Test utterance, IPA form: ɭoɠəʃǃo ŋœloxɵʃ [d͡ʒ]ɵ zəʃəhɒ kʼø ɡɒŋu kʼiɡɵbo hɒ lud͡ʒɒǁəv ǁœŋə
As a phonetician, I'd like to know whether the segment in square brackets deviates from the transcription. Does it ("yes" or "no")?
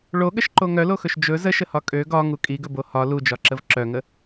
no